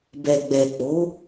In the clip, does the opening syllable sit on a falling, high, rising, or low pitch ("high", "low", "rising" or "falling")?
low